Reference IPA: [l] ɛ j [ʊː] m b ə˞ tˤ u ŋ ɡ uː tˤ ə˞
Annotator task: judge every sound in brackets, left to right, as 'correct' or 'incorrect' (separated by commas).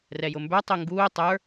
incorrect, incorrect